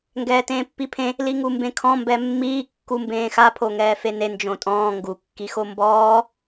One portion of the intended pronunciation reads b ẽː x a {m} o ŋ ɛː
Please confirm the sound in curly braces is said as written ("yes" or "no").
no